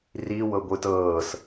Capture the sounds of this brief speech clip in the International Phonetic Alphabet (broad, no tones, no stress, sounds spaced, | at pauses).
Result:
r i w ɤ ɡʷ ɯ t ɤː s